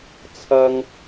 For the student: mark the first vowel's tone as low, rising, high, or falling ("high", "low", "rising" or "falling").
high